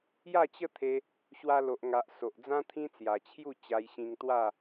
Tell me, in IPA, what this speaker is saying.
j a˥˧ t͡ɕ ə˥˧ t̪ʰ e˧ | ɕ w a˧ l o˨ ʔ ŋ a˨ ʔ s o˨ ʔ d͡z ã˦ t̪ʰ ĩ˦ t͡s j a˨˩ t͡ɕʰ j u˥˧ t͡ɕ a˧ j ɕ ĩ˧ ŋ t̪ w a˥˧

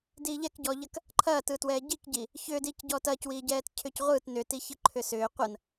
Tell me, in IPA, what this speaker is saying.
d iː ʎ ɛ k ɟ ɔː ʎ ɐ k | ǃʰ ɐː t ɯː t w ɛː ɟ i k ɟ i | ç ʏː d iː c ɟ ɔː t ɐː c w iː ɟ ɛː t cʰ ʏː c ʁʷ ɯː t n ʏ t i ç ɯ ǃʰ ʏ s ʏː qʷ ɐ n

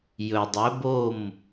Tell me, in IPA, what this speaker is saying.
j ɵ˩ dˤ ɵ˩˧ b o˧˩ m

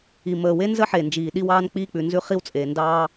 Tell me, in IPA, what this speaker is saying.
i˩ m əː˩ w e˥ n z ə˥ ħ e˩ n d͡ʒ iː˩ ɗ i˥ w ɑː˥ n k͡p iː˥ k͡p ʉ˩ n z ʉ˥ χ i˥ w t͡sʼ eː˩ n d ɑː˥

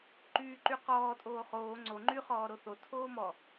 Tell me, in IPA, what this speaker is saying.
ǃ yː ǃ y q ɔː tʼ oː χ oː ŋ͡ǀ o ŋ͡ǃ y χ ɔː ɾ o θ o tʰ oː m ɔ

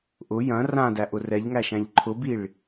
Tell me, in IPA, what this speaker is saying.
ʔ ʊ j ɐ̃ r ã d æ ʔ ʊ r ɛ ʎ ŋ æ ʃ æ̃ ʎ ǃʰ ʊ b i ɭ

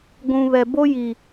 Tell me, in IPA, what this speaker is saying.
ɡʷ ũ˨ β ɛ˨ b o˦ j i˨

